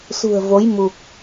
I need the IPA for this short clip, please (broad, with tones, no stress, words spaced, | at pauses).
sṳ˨˩ə̯vo˨˦j mu˨˩k̚